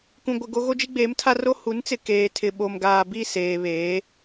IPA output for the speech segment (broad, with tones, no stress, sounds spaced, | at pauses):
k ũ˨ ɡʷ ɪ˨ ɡ o˦ ɣ o˦ d͡ʒ i˦ ɡ͡b eː˨˦ m tʰ a˦ r o˦ h u˨˦ n t͡s ɪ˨ k eː˨ tʰ ɪ˨ ɓ o˨ m ɡ aː˨ b i˦˨ s eː˨ β eː˨˦